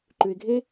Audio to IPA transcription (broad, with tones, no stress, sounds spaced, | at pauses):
ǃ ʉ˨ ɪ̯ ɡʱ e˥